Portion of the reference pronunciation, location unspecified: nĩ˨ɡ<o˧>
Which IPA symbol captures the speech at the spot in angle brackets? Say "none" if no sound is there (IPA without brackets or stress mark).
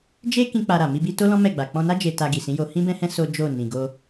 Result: o˧